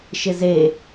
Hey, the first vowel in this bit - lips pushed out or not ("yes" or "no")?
no